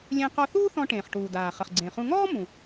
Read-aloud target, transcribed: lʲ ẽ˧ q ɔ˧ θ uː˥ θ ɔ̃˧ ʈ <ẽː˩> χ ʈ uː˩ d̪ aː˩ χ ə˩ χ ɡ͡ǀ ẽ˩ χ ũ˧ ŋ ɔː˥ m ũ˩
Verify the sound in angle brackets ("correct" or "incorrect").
correct